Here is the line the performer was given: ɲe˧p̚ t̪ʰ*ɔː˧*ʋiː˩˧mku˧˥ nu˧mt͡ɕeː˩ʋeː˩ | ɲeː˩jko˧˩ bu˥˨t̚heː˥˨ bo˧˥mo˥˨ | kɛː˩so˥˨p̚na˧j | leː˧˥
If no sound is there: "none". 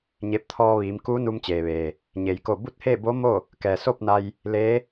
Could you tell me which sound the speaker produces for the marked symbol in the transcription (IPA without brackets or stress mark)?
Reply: ɔː˧